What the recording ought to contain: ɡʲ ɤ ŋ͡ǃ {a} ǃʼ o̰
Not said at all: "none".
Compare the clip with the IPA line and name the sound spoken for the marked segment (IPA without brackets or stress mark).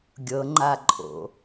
a